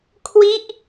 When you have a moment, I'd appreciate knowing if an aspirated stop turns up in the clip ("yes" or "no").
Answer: yes